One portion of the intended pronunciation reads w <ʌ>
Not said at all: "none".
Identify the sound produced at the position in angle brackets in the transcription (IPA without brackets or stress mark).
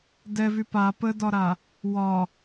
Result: ɒ